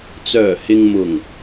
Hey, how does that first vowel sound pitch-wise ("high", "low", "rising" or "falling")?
low